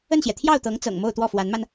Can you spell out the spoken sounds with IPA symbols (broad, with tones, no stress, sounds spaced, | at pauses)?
ə˥˩ n ɕ j ɛ˩ t̪ʰ j ɑ˥˩ ʊ̯ t̪ ɤ˧˥ ŋ t͡s ɤ̰˨˩ ŋ m o˥˧ ʊ̯ t̪ w ɔ˥˩ f w a˧˥ n m a˧ n